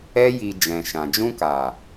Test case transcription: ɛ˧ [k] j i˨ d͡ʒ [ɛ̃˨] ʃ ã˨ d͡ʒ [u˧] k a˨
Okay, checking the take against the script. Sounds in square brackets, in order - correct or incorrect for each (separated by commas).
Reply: incorrect, correct, incorrect